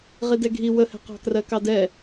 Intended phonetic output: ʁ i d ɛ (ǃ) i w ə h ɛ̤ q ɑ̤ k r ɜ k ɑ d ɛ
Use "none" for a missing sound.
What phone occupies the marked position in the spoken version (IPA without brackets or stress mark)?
ɡʱ